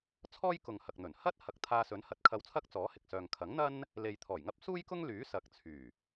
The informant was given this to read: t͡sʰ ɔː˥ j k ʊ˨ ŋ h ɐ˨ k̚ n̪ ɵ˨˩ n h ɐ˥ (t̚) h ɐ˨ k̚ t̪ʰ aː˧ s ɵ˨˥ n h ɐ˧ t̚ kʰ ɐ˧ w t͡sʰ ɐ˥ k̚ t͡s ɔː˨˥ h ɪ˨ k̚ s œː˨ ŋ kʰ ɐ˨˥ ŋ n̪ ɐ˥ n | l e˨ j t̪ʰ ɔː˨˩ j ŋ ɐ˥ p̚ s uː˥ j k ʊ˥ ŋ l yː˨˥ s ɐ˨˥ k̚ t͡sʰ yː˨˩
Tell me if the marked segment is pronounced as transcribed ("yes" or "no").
yes